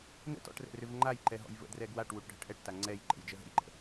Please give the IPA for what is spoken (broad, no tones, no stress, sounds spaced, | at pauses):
n ə̰ t ɔ̰ ʈ r ɛ̰ r ʏ v ŋ͡ǃ a j ǃ ɛ ɦ ɔ̰ j v ə̰ d r ɛ ɡ w a ʈ w u ʈ ɖʱ ə̰ ʈ ʔ ɛ ʈ t a ŋ͡ǀ ɛ j ǃ ɛ̰ j d͡ʒ ə ɦ ə̰ j ǃ ə̰